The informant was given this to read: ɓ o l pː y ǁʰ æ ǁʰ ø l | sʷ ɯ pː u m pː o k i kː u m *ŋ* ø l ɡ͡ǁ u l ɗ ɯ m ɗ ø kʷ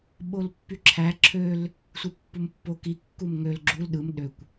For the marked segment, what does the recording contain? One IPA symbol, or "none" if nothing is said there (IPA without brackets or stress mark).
ŋ